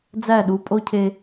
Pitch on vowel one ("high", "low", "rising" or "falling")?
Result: falling